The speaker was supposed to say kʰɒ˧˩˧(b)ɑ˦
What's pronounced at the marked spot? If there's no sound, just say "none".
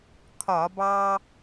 b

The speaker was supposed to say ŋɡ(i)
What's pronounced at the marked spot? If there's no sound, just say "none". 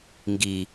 i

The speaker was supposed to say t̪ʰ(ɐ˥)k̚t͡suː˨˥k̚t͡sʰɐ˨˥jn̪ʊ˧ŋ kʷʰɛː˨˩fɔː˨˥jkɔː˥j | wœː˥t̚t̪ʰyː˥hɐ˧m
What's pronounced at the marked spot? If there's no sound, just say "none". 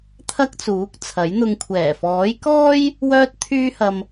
ɐ˥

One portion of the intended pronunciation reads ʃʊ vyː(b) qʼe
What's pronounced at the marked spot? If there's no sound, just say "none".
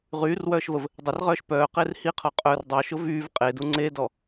v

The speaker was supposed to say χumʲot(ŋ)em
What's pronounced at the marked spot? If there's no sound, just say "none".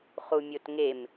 ŋ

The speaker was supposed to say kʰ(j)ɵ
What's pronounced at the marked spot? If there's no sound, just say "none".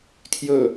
j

